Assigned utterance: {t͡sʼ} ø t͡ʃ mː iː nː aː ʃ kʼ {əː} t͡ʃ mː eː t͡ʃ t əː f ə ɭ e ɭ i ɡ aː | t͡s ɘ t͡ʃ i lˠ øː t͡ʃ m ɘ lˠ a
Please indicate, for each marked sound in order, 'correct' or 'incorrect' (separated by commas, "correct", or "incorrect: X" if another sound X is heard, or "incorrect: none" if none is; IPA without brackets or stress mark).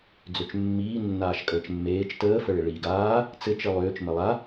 incorrect: d͡z, correct